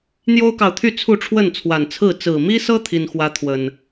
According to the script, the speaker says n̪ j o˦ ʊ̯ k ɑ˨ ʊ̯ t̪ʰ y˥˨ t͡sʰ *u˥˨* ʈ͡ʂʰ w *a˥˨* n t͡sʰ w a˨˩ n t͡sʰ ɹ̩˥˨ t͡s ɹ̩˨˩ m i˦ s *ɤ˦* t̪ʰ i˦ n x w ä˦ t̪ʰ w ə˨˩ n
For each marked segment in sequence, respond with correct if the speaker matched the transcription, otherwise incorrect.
correct, incorrect: ə˥˨, correct

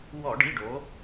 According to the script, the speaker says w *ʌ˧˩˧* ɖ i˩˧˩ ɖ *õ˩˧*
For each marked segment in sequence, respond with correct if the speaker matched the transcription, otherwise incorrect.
incorrect: ɔ˧˩˧, incorrect: o˩˧

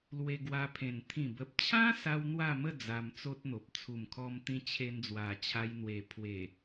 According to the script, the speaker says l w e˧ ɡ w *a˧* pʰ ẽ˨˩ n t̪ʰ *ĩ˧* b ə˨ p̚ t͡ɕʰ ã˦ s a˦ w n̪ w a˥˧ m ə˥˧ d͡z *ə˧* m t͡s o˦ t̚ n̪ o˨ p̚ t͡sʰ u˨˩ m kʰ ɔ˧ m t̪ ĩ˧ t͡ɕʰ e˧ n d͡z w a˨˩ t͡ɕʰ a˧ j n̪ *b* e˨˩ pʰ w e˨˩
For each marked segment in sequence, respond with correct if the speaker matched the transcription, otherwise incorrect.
correct, incorrect: ĩ˨˩, incorrect: a˧, incorrect: w

